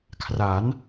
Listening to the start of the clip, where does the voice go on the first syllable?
rising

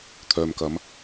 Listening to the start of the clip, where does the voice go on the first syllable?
low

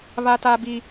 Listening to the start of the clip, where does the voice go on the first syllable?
low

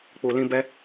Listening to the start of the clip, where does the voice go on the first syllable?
low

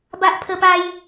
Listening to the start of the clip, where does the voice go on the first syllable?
high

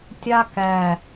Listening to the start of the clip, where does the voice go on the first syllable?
high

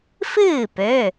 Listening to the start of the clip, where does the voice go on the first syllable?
falling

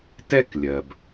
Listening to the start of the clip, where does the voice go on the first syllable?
high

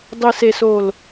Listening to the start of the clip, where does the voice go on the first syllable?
low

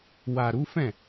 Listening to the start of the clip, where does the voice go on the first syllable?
low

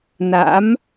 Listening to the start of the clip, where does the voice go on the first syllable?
rising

